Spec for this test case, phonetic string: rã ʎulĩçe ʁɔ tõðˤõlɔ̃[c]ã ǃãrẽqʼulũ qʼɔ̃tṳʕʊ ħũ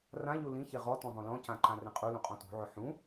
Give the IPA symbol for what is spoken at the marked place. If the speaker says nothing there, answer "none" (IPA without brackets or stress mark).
c